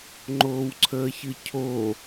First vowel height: mid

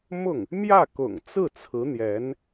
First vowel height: high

